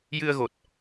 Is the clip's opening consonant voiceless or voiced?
voiced